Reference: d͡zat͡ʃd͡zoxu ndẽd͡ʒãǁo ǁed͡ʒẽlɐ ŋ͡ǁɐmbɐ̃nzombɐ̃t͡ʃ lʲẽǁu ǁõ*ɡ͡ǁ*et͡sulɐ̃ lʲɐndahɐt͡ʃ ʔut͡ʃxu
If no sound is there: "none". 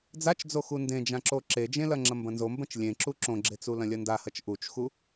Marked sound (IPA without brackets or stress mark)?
ɡ͡ǁ